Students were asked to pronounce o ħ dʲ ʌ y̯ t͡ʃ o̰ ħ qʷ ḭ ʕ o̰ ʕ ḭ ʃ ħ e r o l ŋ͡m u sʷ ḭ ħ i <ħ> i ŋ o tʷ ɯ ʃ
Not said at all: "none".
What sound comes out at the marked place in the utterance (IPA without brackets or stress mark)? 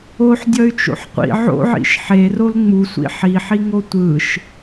ħ